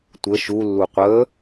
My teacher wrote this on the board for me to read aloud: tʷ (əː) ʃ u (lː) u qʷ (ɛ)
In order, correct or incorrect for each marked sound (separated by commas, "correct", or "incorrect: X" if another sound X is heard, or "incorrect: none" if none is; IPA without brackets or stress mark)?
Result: incorrect: ə, correct, incorrect: ə